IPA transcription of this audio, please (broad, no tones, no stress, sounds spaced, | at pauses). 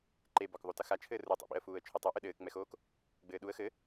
ǃ e b ɔ k ðˤ u t ɐ x a t͡ʃʰ ɘː r u tˤ ḭ ɓ ḭ ə̯ f uː ə̯ t͡ʃʰ o tˤ u ʔ ɨ ɗ ɘː k ŋ͡m ɛ x oː k | ɡ͡b ɘː ɗ u ə̯ x ɘ